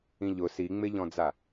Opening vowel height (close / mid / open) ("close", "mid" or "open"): close